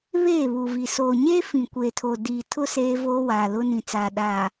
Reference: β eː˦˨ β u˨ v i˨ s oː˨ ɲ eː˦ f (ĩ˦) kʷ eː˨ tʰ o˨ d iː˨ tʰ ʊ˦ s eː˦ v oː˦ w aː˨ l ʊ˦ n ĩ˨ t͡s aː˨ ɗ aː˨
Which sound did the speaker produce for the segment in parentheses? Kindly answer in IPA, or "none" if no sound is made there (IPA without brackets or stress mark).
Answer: ĩ˨